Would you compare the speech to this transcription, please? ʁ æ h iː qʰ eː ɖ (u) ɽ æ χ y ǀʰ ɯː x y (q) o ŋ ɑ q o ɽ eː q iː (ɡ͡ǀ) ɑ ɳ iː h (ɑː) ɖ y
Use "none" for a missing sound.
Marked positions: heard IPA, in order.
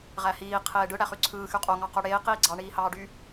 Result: ɯ, qʼ, ɡ͡ǀ, ɑː

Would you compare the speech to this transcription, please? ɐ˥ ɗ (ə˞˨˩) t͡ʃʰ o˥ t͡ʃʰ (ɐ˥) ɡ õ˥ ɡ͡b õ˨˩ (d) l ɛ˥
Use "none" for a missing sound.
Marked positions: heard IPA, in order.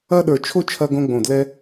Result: ə˞˨˩, ɐ˥, d

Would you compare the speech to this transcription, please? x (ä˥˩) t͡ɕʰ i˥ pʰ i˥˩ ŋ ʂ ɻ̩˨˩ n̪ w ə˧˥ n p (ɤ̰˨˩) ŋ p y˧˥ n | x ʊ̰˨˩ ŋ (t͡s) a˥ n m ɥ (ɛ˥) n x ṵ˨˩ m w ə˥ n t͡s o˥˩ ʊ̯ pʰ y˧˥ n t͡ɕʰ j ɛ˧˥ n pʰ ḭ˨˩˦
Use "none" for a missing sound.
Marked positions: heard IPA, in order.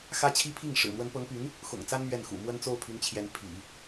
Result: ä˥, ɤ˧˥, t͡s, ɛ˥˩

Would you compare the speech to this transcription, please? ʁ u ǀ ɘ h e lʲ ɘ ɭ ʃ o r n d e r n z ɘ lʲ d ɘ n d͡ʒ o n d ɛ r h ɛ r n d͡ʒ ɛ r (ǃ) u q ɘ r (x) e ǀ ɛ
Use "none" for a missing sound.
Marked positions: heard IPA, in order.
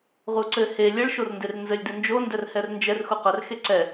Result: x, x

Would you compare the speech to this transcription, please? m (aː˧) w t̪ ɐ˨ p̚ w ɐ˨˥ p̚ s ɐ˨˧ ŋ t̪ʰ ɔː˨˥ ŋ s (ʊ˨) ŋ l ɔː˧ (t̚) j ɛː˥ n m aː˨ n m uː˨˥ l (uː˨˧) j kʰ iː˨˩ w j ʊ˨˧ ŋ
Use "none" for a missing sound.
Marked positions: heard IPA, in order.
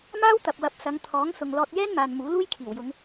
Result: aː˥, ʊ˨, t̚, uː˥

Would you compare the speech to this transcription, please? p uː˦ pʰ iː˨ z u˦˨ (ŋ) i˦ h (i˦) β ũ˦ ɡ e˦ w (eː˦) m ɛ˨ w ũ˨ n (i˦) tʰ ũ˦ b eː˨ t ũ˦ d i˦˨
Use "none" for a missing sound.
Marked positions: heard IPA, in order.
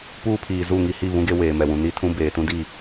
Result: ŋ, i˦˨, eː˨, i˦

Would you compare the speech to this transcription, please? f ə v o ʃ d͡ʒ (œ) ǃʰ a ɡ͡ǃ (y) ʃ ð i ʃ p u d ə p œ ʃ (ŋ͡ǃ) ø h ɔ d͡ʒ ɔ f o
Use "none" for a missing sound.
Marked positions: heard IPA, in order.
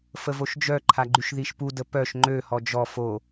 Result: œ, y, ŋ͡ǃ

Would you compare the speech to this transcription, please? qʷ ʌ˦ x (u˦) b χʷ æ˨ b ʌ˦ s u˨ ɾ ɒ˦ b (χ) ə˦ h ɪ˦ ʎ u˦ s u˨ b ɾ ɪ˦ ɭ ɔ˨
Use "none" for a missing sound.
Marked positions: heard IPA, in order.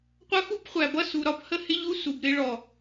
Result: u˦, h

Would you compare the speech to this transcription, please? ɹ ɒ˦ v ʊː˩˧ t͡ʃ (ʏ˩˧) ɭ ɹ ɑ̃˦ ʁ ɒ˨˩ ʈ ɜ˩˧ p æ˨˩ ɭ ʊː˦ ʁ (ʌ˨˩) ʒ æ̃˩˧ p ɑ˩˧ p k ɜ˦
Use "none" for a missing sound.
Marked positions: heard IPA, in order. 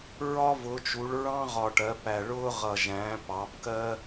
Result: u˩˧, ʌ˨˩

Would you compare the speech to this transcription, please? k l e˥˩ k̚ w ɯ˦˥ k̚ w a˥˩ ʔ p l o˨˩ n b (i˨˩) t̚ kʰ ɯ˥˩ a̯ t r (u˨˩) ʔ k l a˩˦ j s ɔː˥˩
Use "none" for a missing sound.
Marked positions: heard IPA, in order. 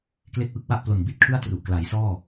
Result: i˥˩, u˨˩

